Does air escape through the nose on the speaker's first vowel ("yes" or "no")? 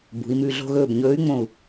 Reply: no